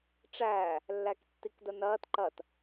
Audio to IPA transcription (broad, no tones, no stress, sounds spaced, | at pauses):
ʈ͡ʂ æː | lː æ k tː i k d ə n ɐː t ǃ ɐ t